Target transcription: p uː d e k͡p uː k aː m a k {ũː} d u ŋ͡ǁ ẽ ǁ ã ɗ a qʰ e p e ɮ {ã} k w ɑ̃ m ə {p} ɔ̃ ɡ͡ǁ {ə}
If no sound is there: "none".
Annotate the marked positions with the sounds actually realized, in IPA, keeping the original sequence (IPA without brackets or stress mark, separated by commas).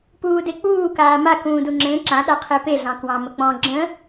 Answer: ũː, ɑ̃, k͡p, ə̃